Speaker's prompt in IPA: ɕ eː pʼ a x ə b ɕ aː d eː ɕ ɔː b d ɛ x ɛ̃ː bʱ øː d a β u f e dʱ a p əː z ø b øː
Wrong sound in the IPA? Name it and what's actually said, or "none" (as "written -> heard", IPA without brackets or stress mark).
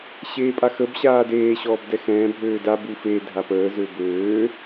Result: β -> b